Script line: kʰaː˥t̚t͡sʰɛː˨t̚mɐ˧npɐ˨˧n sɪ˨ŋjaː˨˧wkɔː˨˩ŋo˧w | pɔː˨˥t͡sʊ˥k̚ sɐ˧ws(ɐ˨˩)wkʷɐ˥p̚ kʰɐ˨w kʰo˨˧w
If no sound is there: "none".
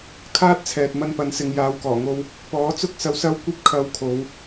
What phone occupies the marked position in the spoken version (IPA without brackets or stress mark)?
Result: ɐ˥